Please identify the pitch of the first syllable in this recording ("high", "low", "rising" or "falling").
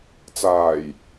low